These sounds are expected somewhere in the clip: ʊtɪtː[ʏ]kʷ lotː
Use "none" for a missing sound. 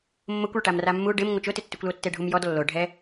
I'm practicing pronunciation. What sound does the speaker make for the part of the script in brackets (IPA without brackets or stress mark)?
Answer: ʏ